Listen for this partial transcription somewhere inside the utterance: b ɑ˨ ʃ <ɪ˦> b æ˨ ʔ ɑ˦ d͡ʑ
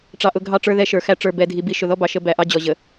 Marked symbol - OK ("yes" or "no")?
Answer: no